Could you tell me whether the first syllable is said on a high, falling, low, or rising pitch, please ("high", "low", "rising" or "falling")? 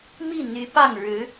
falling